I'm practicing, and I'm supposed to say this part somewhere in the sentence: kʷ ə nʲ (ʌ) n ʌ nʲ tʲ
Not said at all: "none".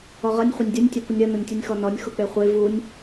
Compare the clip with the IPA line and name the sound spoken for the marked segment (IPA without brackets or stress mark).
ʌ